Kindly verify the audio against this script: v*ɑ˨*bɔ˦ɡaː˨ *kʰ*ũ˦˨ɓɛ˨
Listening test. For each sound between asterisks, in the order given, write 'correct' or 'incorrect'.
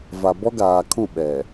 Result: incorrect: a˨, correct

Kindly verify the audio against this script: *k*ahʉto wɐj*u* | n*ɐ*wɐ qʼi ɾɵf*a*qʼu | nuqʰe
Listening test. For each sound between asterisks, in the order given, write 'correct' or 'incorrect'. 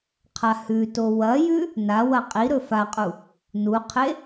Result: incorrect: qʰ, incorrect: ʉ, incorrect: a, correct

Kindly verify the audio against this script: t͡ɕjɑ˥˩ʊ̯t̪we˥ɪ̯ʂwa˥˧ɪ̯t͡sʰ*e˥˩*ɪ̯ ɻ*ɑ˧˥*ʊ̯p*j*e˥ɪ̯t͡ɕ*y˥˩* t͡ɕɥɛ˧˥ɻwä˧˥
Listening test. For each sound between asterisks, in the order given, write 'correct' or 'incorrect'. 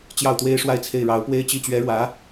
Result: correct, correct, incorrect: w, incorrect: i˥˩

